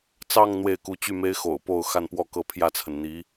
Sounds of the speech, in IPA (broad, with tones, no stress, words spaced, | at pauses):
t͡sɑ˥˧ŋ n̪we˥˩ɪ̯ku˧˥ t͡ɕy˥˩me˥ɪ̯ xo̰˨˩ʊ̯po˥˧ʊ̯ xa˥˧npwɔ˥˧kɤ˥˧ pʰjä˥˩t͡sʰə˩n n̪i˧˥